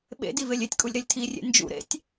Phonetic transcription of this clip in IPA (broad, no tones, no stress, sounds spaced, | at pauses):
ɓ ḛ d i v e lʲ e tʲ kʼ u lʲ ɾ e lʲ tʰ i rʲ ḛ n d͡ʒ ṵ ɾ ḛ tʲ